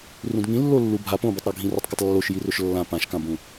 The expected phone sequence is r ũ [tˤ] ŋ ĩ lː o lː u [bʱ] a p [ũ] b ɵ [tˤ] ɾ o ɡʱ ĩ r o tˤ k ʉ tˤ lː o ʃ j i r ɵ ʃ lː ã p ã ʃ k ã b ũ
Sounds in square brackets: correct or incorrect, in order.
incorrect, correct, incorrect, correct

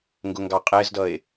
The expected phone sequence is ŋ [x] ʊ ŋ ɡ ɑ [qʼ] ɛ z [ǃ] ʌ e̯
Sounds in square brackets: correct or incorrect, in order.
incorrect, correct, incorrect

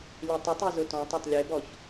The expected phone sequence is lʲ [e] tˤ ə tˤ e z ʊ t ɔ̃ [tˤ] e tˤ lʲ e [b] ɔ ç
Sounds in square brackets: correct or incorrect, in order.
correct, correct, correct

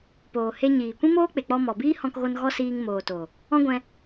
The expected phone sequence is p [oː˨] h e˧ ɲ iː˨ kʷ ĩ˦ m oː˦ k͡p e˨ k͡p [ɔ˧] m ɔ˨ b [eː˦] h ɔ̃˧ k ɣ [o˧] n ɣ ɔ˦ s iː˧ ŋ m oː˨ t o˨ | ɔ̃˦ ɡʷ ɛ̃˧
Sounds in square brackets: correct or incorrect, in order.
correct, correct, incorrect, correct

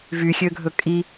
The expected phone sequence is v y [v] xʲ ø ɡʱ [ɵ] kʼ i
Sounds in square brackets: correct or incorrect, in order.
incorrect, correct

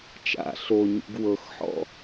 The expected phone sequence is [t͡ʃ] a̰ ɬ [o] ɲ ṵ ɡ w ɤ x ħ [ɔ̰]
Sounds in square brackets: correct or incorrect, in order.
correct, correct, correct

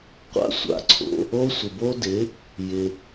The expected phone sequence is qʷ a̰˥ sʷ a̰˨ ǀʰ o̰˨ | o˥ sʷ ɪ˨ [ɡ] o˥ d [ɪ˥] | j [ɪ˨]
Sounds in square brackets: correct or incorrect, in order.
incorrect, incorrect, correct

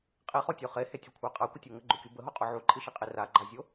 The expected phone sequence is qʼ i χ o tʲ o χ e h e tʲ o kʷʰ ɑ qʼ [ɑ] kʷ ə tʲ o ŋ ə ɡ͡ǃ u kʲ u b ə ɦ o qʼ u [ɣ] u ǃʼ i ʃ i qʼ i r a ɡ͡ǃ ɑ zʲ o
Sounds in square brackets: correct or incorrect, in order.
incorrect, incorrect

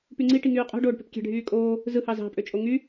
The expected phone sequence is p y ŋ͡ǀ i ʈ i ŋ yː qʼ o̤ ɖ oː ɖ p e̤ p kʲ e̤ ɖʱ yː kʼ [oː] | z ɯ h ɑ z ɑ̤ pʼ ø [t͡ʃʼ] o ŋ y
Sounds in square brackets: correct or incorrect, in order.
correct, correct

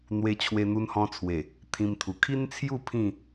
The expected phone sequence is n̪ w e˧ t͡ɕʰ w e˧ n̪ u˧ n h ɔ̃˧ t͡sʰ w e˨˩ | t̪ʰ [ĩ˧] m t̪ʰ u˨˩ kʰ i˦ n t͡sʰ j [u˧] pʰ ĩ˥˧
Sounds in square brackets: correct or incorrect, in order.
correct, incorrect

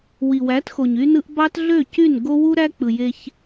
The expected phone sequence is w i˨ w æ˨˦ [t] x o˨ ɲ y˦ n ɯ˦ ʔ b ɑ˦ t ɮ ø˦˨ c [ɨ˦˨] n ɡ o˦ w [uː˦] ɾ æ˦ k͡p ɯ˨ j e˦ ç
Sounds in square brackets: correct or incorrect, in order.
correct, incorrect, incorrect

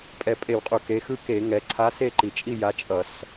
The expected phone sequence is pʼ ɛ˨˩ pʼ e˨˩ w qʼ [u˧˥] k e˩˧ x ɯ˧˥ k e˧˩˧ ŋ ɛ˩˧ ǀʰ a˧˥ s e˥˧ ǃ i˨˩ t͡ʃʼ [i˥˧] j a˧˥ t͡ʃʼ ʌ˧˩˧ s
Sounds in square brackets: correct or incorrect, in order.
incorrect, correct

